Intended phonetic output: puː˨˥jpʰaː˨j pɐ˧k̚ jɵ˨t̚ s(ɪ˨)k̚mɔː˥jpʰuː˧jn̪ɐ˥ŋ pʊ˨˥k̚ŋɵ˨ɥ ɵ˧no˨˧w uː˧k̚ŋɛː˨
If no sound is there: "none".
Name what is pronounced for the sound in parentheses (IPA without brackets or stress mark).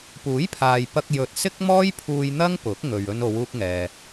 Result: ɪ˥